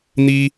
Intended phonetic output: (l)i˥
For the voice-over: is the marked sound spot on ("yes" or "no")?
no